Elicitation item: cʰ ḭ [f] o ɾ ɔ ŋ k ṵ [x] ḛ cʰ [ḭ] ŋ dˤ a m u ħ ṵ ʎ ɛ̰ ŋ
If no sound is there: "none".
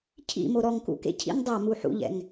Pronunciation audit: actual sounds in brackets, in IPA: m, k, ḭ

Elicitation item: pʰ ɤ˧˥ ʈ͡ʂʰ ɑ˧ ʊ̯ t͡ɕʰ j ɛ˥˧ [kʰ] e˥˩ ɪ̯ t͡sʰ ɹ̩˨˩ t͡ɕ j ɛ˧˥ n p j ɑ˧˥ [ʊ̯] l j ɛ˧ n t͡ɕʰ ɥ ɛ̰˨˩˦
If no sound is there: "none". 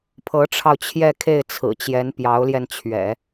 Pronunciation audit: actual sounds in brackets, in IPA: kʰ, ʊ̯

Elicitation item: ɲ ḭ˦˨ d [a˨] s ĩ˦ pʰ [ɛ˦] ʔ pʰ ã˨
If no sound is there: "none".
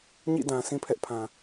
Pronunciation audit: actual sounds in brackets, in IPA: ã˨, ɛ˦

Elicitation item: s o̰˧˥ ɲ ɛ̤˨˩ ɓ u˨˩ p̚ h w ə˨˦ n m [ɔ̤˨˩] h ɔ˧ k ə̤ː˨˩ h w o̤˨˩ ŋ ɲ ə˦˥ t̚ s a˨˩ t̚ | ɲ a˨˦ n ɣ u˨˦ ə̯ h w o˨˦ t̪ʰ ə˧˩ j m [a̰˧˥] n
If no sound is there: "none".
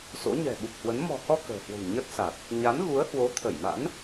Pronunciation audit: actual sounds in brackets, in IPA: ɔ̤˨˩, a̰˧˥

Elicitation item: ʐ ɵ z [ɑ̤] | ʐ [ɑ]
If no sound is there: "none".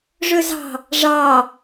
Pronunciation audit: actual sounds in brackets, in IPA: ɑ̤, ɑ

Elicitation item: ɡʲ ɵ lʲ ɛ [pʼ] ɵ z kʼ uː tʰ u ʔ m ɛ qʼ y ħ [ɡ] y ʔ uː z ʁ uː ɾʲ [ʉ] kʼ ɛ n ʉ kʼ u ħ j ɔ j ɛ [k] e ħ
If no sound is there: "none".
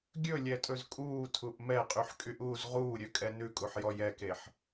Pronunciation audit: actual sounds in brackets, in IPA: tʼ, kʼ, ø, k

